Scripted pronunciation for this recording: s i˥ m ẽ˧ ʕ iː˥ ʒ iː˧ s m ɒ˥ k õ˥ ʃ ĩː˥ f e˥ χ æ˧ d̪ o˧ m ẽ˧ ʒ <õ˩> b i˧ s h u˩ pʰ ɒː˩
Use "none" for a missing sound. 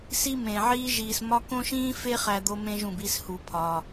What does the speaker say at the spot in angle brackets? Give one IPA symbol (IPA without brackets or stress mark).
ũ˩